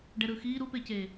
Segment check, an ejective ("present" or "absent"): absent